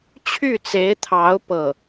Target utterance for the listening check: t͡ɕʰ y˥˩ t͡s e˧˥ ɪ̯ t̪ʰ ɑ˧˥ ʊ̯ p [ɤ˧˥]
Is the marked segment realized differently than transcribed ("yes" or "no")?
yes